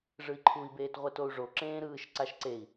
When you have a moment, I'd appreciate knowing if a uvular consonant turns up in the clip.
yes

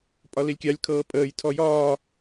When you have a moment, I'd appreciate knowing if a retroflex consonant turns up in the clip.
no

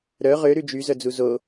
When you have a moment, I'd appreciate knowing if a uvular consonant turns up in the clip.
yes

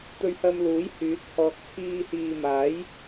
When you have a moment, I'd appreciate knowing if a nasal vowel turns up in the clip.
no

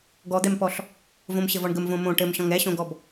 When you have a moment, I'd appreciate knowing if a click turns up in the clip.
no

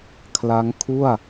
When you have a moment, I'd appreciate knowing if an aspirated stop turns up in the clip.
yes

